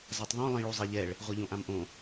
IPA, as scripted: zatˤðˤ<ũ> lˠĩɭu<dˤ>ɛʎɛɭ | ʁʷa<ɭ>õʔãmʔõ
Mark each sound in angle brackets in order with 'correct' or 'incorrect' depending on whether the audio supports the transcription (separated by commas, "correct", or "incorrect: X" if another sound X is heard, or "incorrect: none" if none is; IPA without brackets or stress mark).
incorrect: õ, incorrect: zˤ, incorrect: ʎ